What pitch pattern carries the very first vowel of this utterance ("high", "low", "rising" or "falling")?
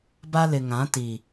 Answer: high